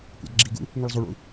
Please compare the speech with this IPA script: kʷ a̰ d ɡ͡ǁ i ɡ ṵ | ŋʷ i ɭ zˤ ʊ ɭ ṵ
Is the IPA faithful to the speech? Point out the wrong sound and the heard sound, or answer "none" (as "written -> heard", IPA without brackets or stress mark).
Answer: none